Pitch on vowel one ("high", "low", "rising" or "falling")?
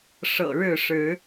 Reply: low